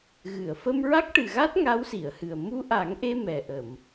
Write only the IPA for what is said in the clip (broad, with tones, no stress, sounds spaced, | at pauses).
ɣ ɨ˨˩˨ ə̯ f ə˧ m ɹ a˦˥ k̚ ʈ ɨ˨˩ ɣ a˦˥ t̚ ŋ a˧˥ w s i˨˩˨ ə̯ h ɨ˨˩ ə̯ m u˧ ʔ a˨˩˦ ŋ ʔ e˧ m ɛ˨˩ ʔ ə˨˩˨ m